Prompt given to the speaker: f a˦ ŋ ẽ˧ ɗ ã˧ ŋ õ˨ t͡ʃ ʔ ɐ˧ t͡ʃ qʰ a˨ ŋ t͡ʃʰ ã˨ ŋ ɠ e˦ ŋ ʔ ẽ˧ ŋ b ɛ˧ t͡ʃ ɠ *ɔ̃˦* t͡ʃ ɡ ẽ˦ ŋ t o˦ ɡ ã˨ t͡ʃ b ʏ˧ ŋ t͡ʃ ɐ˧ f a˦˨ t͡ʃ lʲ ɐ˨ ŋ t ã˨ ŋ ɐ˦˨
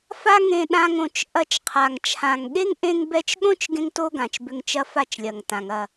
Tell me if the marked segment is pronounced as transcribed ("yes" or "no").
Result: no